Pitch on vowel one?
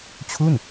falling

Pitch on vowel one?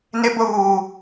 high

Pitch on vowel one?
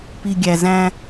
low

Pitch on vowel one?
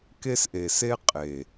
high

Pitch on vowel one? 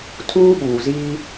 high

